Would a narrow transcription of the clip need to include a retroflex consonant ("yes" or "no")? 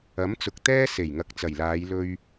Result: no